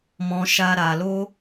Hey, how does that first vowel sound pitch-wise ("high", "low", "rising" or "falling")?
high